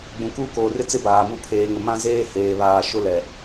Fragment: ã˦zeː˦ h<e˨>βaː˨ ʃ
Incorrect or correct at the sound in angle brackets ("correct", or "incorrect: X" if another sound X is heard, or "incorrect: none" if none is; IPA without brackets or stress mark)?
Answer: incorrect: eː˨